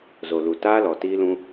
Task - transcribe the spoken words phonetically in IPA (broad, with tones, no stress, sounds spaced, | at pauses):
z o˨ l u˨ t aː˦ l ɔ˨ t iː˦ l ũ˦